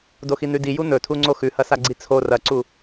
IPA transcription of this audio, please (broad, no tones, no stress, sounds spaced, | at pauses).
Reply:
d o x i n̪ ʉ d i j u n̪ ɵ tʰ u ŋ͡ǀ o x ʉ h ɐ s a ɡ͡ǀ i t͡sʰ o r ɐ ǀ u